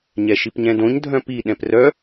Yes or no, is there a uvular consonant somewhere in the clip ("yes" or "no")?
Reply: no